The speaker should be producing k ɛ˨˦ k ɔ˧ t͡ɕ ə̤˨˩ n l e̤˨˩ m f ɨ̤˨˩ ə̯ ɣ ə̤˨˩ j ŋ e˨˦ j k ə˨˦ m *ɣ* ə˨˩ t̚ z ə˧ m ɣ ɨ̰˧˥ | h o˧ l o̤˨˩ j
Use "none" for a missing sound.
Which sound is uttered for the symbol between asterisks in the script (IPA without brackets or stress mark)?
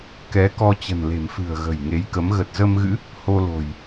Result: ɣ